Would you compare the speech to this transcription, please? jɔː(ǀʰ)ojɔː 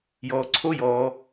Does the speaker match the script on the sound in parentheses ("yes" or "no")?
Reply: yes